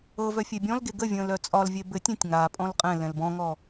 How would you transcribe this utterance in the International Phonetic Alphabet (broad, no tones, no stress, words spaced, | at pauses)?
ɤ vœfʲebʲɔ̃lɡe ɡəvʲə̃ːl œt͡sʼɒlvʲe bɘtʲɛ̃tʲ ŋapʼɔ̃l qʼɛ̃ lɛ̃lbɔ̃ŋɔ